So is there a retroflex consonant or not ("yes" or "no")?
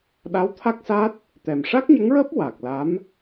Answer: yes